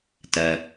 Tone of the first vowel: low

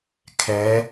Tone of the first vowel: rising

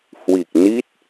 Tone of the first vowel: low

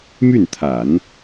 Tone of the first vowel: falling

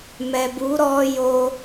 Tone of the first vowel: low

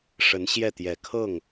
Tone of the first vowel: rising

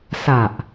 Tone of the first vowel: low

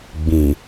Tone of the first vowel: low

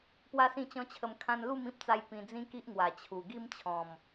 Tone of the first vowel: high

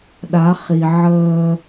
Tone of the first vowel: rising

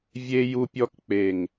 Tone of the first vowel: high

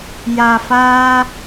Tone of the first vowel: low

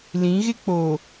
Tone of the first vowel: rising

